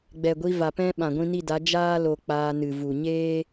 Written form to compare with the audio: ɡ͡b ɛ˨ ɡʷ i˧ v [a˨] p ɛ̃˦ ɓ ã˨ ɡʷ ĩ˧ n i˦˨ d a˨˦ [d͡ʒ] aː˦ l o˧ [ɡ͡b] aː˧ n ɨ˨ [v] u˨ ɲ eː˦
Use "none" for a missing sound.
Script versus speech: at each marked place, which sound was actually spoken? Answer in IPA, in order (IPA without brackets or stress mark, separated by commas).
a˨, d͡ʒ, k͡p, v